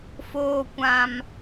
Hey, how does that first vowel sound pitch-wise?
low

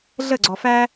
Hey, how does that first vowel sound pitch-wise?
falling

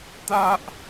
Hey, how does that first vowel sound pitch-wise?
high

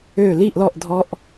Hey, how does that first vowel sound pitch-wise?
falling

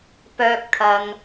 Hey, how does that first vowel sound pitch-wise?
high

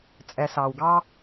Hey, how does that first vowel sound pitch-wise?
low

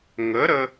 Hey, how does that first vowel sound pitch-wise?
rising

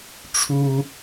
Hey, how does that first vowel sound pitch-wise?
high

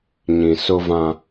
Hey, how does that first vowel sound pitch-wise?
low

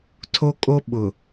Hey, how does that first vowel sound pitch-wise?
high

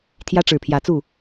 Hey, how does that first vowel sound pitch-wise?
high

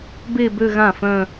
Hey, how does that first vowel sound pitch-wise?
falling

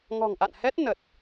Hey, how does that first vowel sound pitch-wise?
low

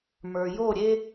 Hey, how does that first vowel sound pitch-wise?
low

